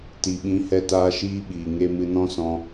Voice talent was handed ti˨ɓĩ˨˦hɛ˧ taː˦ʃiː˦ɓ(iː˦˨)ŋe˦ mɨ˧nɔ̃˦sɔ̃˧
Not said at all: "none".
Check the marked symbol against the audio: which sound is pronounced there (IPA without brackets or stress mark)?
iː˨